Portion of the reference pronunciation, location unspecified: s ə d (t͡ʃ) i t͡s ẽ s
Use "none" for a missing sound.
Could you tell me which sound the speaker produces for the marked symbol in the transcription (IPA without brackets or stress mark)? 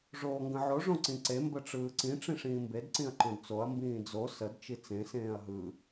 t͡ʃ